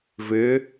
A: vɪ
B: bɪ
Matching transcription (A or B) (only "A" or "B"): A